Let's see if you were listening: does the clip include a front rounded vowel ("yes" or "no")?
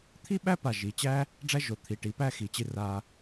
no